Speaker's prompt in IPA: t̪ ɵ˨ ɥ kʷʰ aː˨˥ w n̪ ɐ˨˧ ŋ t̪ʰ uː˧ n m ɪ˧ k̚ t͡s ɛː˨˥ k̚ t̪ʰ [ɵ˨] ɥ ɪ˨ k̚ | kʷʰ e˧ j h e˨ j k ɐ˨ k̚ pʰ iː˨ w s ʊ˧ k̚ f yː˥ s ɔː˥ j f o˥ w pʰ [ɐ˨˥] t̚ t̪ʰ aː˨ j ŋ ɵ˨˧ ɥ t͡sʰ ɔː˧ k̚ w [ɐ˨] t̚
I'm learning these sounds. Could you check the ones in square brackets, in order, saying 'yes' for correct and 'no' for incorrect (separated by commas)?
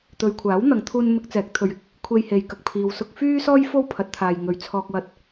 yes, yes, no